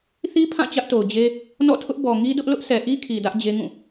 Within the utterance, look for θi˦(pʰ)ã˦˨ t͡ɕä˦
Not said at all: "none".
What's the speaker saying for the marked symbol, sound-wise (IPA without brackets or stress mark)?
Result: pʰ